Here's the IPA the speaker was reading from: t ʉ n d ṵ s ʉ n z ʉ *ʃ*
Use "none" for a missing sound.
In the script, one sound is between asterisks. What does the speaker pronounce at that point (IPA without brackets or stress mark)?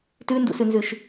ʃ